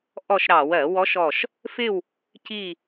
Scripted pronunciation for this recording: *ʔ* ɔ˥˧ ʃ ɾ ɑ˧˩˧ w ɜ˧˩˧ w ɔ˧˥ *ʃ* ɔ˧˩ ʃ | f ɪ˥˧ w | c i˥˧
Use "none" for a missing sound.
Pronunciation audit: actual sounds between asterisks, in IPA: ʔ, ʃ

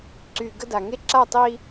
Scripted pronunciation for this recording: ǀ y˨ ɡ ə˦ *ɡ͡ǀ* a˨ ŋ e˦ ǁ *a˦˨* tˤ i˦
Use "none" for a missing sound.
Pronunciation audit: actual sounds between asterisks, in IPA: d, a˦˨

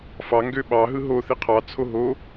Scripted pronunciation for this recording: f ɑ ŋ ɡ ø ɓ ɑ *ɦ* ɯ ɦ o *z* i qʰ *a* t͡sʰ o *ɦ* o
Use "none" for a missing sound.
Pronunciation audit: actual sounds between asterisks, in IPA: ɦ, θ, ɑ, ɦ

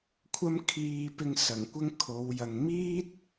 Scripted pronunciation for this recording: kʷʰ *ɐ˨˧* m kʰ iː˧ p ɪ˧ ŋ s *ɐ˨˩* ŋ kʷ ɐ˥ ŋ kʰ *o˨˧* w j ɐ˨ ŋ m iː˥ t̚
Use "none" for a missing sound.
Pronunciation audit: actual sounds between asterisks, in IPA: ɐ˥, ɐ˨˩, o˨˧

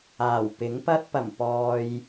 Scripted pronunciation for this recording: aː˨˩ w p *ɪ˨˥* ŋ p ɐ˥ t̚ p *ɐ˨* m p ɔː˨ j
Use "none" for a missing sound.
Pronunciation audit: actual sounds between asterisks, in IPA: ɪ˨˥, ɐ˨˩

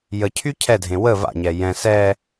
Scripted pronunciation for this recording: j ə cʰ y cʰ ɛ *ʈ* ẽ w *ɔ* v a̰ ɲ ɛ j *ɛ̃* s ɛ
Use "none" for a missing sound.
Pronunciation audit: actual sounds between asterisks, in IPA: dʱ, ə, ɛ̃

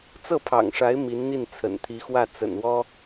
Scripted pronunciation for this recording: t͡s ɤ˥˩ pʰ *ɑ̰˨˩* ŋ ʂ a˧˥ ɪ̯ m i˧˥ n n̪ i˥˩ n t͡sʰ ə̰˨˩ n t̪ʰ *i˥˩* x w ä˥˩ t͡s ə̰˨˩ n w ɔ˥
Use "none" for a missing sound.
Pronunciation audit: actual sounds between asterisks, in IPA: ɑ̰˨˩, i˧˥

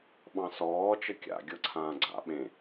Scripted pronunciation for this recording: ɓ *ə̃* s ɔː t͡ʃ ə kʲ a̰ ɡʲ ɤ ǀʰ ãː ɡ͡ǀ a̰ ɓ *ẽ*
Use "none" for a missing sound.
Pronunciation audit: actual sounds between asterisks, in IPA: ɑ̃, ẽ

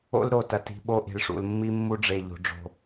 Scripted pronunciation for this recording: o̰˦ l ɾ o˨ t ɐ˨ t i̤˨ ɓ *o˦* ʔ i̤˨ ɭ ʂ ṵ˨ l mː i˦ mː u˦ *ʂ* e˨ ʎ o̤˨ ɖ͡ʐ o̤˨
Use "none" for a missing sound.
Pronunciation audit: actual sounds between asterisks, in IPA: o˦, ɖ͡ʐ

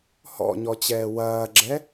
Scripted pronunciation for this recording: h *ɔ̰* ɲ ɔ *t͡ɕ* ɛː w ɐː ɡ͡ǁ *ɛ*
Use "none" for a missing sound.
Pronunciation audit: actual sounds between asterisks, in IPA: ɔ̰, t͡ɕ, ɛ

